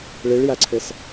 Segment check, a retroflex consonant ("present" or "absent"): present